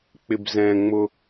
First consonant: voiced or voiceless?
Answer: voiceless